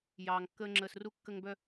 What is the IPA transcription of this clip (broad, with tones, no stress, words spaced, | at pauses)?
jɑː˨ŋkːəː˦ŋ͡ǁəː˧s ru˧kːə˧ŋbœ˧